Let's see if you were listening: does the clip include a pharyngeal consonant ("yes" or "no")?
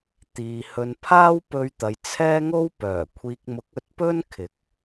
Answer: no